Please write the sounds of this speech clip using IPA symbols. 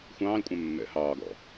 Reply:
xʷ ɑ̃ː l kʷʼ ɛ̃ mː ɛ̰ h ɑː ɡ ɔ̰

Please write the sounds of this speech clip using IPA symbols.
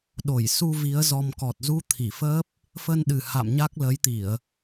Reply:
ɗ o˧˩ j s u˧ v i˨˦ ə̯ z ɔ˧ m k ɔ˨˩ t̚ z u˧ t̪ʰ i˧˩ f əː˦˥ p̚ | f ə˧ n ɗ ɨ˨˩ h a̰˧˨ m ɲ a˦˥ k̚ l ə˨˦ j t̪ i˧˩˨ ə̯

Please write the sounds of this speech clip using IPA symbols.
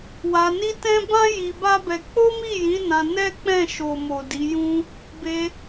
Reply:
w a˧ n i˦ t ɛ̃˦ b ã˦ j i˧ b a˦ b ɛ˧ k͡p o˦ m i˦˨ j ĩ˨˦ n ã˧ n ɛ˦ k͡p ɛ̃˦˨ ʃ o˨ m o˨ d i˨˦ j ũ˦ | b e˧

